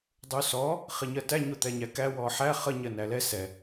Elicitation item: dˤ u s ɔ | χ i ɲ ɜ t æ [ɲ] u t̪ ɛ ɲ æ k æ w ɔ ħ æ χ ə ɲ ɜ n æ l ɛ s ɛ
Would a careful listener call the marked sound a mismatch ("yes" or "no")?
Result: no